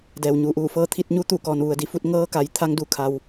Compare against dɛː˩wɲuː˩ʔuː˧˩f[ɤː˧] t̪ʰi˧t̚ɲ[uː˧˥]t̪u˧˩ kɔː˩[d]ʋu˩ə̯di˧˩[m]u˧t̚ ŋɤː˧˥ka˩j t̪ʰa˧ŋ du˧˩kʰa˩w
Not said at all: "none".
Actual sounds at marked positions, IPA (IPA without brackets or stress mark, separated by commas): ɤː˧, u˧˥, n, f